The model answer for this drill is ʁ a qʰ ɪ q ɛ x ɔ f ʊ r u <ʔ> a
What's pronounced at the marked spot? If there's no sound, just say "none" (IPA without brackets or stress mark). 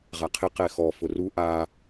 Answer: ʔ